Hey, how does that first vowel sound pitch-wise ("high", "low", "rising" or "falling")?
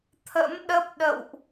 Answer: rising